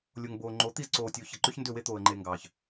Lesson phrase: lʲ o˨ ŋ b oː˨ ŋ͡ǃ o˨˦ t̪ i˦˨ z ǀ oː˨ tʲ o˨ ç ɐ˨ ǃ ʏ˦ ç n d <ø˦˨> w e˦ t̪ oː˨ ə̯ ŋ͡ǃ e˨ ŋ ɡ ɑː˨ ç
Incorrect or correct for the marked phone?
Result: correct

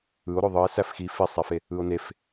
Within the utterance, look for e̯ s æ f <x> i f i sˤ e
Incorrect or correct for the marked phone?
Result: correct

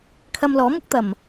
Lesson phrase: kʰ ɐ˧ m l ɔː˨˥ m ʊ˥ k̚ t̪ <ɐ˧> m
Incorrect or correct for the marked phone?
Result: incorrect: ɐ˨˩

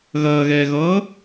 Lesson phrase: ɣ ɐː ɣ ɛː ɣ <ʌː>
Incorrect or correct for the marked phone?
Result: correct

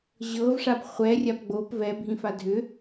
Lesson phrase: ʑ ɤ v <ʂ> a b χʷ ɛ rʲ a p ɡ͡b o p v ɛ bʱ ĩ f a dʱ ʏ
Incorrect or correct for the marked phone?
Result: correct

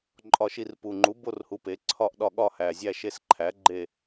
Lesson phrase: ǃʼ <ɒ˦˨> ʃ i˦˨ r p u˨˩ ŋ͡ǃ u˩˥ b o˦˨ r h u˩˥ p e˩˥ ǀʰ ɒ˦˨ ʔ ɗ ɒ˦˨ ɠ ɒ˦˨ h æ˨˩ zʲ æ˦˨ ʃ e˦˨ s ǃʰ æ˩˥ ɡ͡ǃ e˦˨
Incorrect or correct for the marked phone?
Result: correct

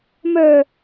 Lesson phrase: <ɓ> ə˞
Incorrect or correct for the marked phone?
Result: incorrect: m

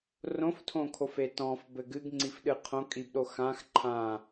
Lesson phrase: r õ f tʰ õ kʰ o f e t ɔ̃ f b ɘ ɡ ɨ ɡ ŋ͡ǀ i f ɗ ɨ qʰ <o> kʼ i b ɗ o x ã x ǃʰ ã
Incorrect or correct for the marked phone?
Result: incorrect: õ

